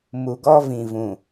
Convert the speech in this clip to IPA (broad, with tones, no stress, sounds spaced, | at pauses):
m u˨ ɡ ɔ˦ v ĩ˨ v ũ˨